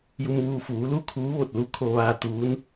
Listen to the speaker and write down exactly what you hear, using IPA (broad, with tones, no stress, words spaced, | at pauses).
ju˧mʋuː˧ fuː˩˧lu˥˨ kʰuː˧˥ʋo˧˩t̚lu˧˥ kʰo˧ʋaː˧ t̪uː˧˥n